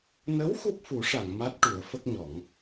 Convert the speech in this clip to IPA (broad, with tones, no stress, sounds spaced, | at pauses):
n ə˧˥ w x u˦˥ p̚ f u˨˩˦ ʂ a˨˩˨ ŋ m a˦˥ t̚ ʈ u˨˩˦ ə̯ f ə˦˥ k̚ ɲ ɔ˨˩˦ ŋ